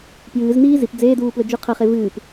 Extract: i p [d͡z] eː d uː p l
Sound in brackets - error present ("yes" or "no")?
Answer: no